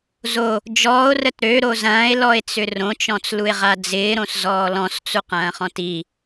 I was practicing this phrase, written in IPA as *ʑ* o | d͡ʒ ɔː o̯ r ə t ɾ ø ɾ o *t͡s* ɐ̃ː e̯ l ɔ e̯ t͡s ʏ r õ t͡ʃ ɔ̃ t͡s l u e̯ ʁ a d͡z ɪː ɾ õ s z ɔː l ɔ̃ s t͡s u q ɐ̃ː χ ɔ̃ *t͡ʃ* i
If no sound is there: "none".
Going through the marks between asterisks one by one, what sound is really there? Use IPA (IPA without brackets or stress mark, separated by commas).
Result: z, z, t